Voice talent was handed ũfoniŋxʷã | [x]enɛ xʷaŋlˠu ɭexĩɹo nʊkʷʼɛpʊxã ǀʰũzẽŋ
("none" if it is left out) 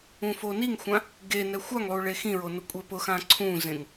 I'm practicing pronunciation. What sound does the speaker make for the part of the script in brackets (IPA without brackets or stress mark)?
ɡ